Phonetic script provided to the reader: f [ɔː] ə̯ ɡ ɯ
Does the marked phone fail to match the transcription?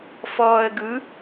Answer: no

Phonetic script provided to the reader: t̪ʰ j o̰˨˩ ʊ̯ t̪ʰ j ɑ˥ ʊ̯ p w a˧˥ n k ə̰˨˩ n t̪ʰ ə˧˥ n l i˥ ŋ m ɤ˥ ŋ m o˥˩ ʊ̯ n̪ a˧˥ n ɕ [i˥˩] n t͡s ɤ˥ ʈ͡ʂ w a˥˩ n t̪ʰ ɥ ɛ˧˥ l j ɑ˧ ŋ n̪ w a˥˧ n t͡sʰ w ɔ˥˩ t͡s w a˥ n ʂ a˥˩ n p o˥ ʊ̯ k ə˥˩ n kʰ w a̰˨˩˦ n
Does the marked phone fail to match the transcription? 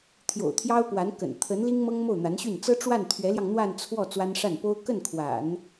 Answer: yes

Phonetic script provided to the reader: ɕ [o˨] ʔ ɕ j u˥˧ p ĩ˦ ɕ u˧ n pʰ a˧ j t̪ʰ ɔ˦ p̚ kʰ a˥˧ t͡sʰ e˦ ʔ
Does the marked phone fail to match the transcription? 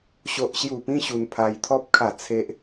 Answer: yes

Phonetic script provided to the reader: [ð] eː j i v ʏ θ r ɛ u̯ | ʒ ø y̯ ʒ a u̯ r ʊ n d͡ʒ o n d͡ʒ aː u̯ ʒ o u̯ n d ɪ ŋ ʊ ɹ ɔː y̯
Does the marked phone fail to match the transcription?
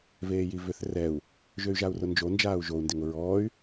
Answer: yes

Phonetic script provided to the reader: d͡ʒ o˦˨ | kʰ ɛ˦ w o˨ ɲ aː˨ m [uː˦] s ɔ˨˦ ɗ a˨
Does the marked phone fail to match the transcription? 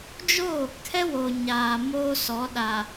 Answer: yes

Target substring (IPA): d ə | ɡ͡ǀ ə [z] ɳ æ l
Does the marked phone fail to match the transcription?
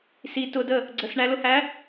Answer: yes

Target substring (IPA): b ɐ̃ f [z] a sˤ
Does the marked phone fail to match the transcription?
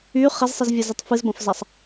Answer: no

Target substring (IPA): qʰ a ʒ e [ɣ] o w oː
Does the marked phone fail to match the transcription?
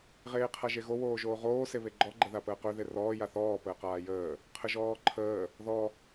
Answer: no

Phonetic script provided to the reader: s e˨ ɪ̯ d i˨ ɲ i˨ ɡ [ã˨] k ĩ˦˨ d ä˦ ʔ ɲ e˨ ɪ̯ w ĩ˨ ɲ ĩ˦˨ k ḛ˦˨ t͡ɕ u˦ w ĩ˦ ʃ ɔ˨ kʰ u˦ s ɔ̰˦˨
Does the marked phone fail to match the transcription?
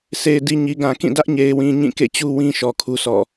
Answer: no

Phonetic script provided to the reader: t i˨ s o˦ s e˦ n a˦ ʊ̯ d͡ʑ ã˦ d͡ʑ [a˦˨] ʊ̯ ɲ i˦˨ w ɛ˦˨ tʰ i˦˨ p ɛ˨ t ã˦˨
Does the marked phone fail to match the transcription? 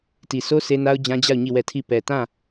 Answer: no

